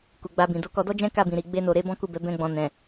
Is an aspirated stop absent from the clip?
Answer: yes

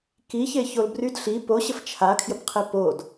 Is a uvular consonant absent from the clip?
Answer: no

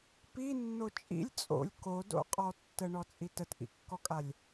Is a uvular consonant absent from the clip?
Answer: no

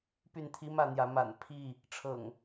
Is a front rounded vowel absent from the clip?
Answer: no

